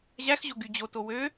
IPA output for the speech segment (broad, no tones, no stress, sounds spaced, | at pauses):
ʑ æ x ʑ o ɡ y d͡ʑ o t o w ø